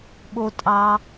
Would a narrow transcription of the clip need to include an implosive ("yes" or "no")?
yes